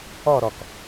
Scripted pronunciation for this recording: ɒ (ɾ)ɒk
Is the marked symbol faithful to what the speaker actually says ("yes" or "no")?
yes